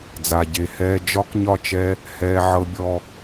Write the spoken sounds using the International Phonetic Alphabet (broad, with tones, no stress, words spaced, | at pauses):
d͡za˨ɟe˨hɛː˧ d͡ʒɒ˦kɲɒ˦˨t͡ʃɛ˧ | hɛː˧ʕɤ˧bʲɔ˧